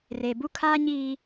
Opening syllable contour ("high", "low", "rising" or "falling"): low